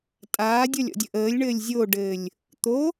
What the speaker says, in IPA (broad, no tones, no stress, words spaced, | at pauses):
tʼaːdʲɔlʲɔ̰dʲə ʔəːlʲɳɘːlʲ zʲoɖɘːlʲ | t̪o